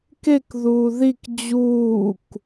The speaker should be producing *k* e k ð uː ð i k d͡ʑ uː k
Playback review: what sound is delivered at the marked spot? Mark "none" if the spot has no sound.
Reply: k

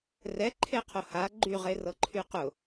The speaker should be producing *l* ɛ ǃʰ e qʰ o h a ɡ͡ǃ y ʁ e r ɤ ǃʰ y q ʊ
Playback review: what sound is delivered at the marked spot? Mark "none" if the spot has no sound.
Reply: r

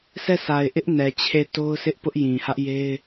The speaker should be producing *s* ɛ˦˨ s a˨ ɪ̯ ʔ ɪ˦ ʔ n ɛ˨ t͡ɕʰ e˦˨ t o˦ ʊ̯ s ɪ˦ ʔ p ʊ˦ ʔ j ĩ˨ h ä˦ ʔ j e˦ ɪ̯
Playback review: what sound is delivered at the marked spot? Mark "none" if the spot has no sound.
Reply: s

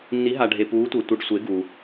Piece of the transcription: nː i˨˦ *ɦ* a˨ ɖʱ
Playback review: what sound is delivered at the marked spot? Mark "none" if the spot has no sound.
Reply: ɦ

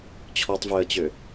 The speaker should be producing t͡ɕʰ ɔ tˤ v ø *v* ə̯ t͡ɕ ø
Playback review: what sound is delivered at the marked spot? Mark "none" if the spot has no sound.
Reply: none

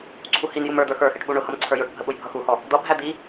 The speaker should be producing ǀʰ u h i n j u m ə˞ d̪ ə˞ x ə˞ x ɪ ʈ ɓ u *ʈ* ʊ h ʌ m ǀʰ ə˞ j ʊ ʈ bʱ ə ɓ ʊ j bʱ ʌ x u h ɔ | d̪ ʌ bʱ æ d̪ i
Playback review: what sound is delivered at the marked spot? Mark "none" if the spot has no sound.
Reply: ɳ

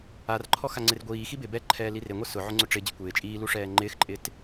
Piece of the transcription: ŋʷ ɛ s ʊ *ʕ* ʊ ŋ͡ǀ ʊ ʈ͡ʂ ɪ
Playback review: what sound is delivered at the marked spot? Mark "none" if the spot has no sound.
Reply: ʕ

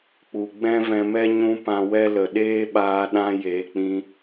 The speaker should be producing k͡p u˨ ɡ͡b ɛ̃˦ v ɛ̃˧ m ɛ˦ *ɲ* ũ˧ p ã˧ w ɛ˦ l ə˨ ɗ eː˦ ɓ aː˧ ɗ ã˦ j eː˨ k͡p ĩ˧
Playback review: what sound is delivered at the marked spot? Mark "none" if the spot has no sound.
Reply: ɲ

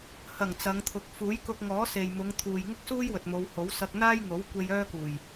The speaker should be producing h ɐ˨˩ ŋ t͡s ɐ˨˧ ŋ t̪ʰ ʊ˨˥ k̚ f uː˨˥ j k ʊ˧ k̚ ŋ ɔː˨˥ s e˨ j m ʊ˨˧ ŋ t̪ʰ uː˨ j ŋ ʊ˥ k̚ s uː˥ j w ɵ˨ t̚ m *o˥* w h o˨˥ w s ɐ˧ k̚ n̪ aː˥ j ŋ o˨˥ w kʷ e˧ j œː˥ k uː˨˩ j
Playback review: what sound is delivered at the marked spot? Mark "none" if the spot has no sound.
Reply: o˨˧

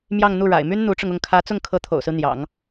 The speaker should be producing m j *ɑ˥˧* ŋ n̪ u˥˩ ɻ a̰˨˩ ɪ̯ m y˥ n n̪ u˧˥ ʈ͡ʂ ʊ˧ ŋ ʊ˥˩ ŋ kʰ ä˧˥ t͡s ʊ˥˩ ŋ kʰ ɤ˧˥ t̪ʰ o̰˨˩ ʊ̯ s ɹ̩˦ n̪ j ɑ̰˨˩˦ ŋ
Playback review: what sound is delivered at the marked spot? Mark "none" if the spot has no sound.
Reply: ɑ˥˧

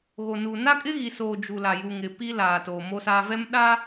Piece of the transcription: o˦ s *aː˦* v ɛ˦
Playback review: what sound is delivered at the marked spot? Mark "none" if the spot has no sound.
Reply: aː˦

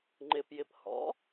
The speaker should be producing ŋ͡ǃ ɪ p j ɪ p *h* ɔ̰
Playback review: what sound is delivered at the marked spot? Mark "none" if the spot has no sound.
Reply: h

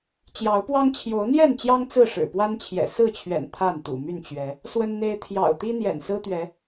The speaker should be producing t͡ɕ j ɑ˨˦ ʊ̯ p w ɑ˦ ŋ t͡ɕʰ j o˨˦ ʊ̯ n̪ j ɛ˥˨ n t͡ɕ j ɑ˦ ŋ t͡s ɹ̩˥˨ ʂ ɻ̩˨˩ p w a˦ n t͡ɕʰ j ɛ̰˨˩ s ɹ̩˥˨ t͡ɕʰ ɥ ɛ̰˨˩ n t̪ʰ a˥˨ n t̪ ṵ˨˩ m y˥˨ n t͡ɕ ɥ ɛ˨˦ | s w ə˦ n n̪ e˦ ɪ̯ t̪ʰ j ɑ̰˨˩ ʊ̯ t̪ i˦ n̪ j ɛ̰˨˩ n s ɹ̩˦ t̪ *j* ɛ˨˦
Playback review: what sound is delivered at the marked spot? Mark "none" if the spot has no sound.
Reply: ɥ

